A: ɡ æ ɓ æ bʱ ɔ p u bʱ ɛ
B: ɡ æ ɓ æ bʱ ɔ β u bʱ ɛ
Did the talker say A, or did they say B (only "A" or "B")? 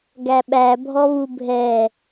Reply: B